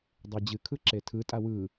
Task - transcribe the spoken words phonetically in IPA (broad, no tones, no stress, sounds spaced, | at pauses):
dˤ e d͡ʑ ɨ kʰ ɯ ǁ e tʰ ɯ tʼ a w ɯ